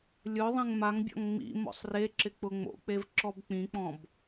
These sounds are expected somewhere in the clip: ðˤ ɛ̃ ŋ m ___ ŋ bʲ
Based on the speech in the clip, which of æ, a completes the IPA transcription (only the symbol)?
a